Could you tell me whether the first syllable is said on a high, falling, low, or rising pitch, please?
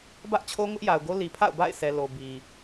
high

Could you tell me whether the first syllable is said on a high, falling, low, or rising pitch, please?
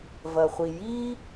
low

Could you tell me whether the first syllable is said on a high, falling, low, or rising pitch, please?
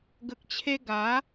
low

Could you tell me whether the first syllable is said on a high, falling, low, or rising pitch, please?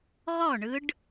falling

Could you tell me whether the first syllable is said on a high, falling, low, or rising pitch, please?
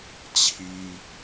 high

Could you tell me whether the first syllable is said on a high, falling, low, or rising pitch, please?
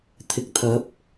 rising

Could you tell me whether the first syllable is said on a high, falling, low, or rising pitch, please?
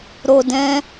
low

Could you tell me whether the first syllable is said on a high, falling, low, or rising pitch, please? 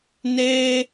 high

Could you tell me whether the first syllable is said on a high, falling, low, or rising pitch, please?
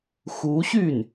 rising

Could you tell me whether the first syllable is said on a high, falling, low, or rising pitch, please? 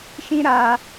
high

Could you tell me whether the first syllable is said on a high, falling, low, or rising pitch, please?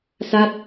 falling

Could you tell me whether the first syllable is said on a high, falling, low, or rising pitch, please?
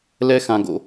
high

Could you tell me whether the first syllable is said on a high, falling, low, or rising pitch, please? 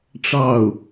falling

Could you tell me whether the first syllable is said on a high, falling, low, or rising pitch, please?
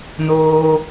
high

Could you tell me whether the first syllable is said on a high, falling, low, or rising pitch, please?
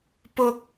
high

